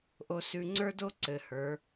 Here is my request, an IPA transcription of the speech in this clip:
ʔ o˨ s ʉ˨ ŋ͡ǀ ə˞˦ d o˦ ǀ ɘ˨ h ə˞˨˦

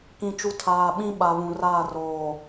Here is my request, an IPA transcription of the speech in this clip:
k ĩ˨ t͡ʃ u˨ tʰ aː˨ ɓ ĩ˦ ɓ a˨ β ũ˨ r aː˦˨ r oː˨

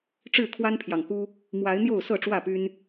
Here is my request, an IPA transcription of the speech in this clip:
ʈ͡ʂ ɻ̩˥˨ kʰ w a˦ n pʰ j ɑ˨ ŋ k u˦ | m w a˨˦ ɪ̯ n̪ j o˥˨ ʊ̯ s ɤ˥˨ ʈ͡ʂ w ä˥˨ p y˦ n

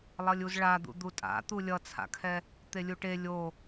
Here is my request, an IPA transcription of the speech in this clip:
lˠ ʌ lʲ u z ɭ a d̪ ṵ d̪ u tʼ a̰ t̪ u lʲ ʌ t͡sʰ a̰ kʰ ɛ | t̪ e lʲ u ʈ e lʲ o

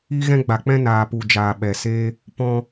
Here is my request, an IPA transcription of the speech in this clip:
i˦ ɣ ɛ̃˦ ɡ͡b a˨ k͡p ɛ̃˦ n aː˨ p u˨ d͡ʒ aː˨ ɓ ɛ˨ s eː˦ | p ɔ̃˦

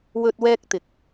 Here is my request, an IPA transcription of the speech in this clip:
w ɵ˥ t̚ w ɛː˥ k̚ t̪ ɪ˨˥ k̚

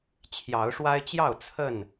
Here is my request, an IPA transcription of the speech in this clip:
t͡ɕʰ j ɑ˨˦ ʊ̯ ʂ w a˦ ɪ̯ t͡ɕ j ɑ˥˨ ʊ̯ t͡sʰ ə˥˨ n

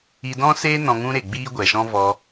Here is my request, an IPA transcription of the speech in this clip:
i˧ d ɔ̃˦ s eː˦ n ɔ̃˧ ŋ ũ˦ ɾ e˨ ɡ͡b iː˦ ɡʷ ɛ˨ ʃ ɔ̃˦ v ɔ˧

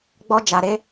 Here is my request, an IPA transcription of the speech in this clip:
ɡ͡b ɔ˧ d͡ʒ a˨ ɾ e˨˦

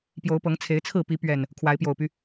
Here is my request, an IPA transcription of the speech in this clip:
p j o˨˦ ʊ̯ p ɤ˨˦ ŋ t͡sʰ e˨˦ ɪ̯ t͡sʰ ɹ̩˥˨ p i˨˦ p ɥ ɛ˨˩ n | kʰ w a˨˦ ɪ̯ p j o˨˩ ʊ̯ p y˦

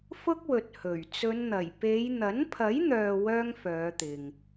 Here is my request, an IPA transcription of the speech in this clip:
f ʊ˥ k̚ w ɵ˨ t̚ h ɵ˨˩ ɥ t͡s ɵ˨˧ n n̪ ɐ˨˩ j p e˨˧ j n̪ ɐ˨˥ n pʰ ɐ˨˥ j n̪ œː˨ w œː˥ ŋ f œː˨˧ t̪ ɪ˨ ŋ

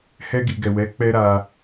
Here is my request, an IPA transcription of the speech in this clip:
h ɛ˧ ɡ i˨ ɡ ɛ˨ w ɛ˨˦ k͡p ɛ˧ ɾ a˧

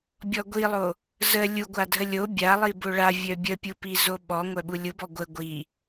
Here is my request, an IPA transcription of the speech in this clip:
bʲ ɔ ɡʷ i lˠ o | z ə lʲ u ɡʷ a dʱ ə lʲ o bʲ a lˠ i b o ɭ a vʲ œ bʲ ə pʲ u p i z o ɓ ɔ ŋʷ œ ɓ u lʲ u b ɔ ɡʷ ə ɡʷ i

